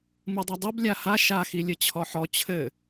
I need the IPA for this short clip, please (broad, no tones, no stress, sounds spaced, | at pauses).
m ɨ dˤ ɐ dˤ u b lʲ a h a ʃ a x i lʲ ɘ t͡ɕʰ ɔ ħ ɔ t͡ɕʰ ɘ